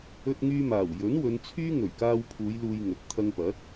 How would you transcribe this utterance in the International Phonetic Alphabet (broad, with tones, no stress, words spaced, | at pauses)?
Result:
ɵ˧t̚ŋyː˧maː˨˩w jɵ˨˥nwɵ˨˧nt͡sʰyː˥ ŋɵ˨˩ɥkaː˧wpʰuː˨˧j luː˧jŋɵ˨˥t̚ t̪ʰɐ˧ŋpɐ˨˥t̚